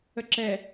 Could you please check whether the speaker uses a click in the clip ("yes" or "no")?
yes